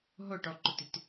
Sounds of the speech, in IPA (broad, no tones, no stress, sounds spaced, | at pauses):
ɦ ʊ ʈ ɔ ǃ ʊ t i t